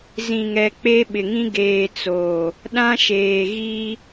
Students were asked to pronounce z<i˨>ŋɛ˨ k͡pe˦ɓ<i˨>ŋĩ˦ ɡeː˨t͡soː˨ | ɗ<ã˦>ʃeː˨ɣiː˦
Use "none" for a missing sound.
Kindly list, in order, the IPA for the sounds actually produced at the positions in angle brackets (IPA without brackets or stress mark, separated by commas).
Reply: ĩ˨, ɪ˨, ã˦